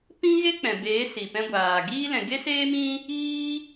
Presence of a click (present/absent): absent